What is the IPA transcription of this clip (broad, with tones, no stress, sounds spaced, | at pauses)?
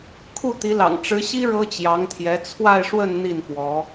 kʰ u˥˩ t̪ i˧˥ l ɑ̰˨˩ ŋ ʈ͡ʂ ɻ̩˧˥ ɕ i˥ ɻ ɤ˥ t͡ɕ j ɑ˧˥ ŋ t̪ʰ j ɛ˧˥ t͡sʰ w a˥˧ ɪ̯ ʂ w ə˥˧ n n̪ i˥˩ n f w ɔ˧˥